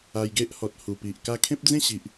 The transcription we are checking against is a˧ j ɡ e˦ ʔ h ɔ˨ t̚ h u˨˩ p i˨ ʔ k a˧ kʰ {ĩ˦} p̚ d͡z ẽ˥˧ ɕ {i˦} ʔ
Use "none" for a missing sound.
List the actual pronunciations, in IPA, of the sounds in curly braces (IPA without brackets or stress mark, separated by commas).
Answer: ẽ˦, i˨